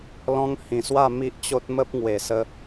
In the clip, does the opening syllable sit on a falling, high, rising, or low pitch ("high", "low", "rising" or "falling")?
high